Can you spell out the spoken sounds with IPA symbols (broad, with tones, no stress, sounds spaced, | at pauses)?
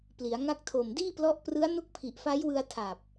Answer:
p l i˩˦ a̯ ŋ a˦˥ k̚ tʰ o˨˩ m d iː˥˩ p l ɔ˦˥ ʔ p r ɯ˦˥ a̯ n u˦˥ k̚ pʰ i˨˩ ʔ f a˦˥ j w ɯ˧ a̯ tʰ a˨˩ p̚